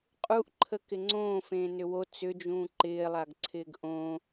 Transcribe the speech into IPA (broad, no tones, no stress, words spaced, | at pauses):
qʼuʔǃʰə kɪŋ͡ǀõː fẽːnʏwo t͡sʏd͡ʒũː ǃɪːlˠaɡǀʰɪːɡ ʔõ